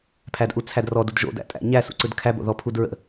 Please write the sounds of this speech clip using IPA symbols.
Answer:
pʰ æ d ʔ u t͡sʰ æ d r ɔ d u d ʒ o̰ d æ̰ tʼ æ̰ ɲ æ s ṵ ǀ ɯ d kʰ æ b o̰ ð ɔ pʰ u d ɹ ə̰

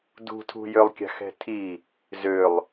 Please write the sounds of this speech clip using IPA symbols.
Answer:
d ṳ tʰ ṳ j ø lˠ kʲ a̤ x ɛ̤ tʰ i | z ø lˠ

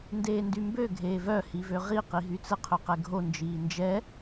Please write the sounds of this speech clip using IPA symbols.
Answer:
n d eː n d y m b ø ɡʱ eː v œ h i v ø ʁ i q i ɦ y t͡s ə qʰ ø q ɛ ɡʱ o n d͡ʒ iː n d͡ʒ ɛ

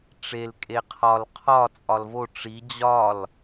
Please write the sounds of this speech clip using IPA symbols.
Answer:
ʈ͡ʂ e l kʼ e qʰ ɒ l qʰ ɒ t͡sʼ ɒ l v o ʈ͡ʂ i d͡ʑ ɒ l

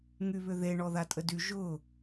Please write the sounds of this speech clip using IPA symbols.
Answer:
ŋ y β ʏ ð e ɳ ɔ ð a tʼ ə d y ʒ ʊ

